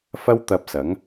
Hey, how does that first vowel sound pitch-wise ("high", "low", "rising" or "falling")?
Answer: high